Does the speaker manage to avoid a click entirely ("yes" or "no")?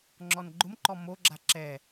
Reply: no